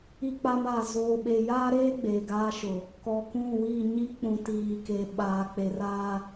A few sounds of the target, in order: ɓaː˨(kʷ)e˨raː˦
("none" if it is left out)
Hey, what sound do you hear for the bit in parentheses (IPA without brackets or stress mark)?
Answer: k͡p